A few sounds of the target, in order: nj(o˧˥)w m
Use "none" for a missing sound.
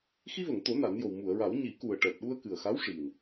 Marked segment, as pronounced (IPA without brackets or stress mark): o˨˩